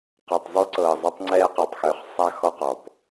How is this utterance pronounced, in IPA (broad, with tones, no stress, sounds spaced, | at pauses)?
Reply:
q ɤ˨ tˤ zˤ y˦ ǀ ɤː˨ zˤ ɤ˦ tˤ ŋ͡ǀ ɛː˦ q e˨ tˤ x ʏː˨ χ sˤ a˦ x ɔ˦ q ɔ˨ p